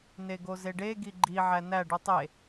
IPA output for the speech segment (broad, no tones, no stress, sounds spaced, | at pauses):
n e ɡ o z e ɖ e ɡ i ɡ͡ǃ i ʕ æ n æ ɖ u tˤ e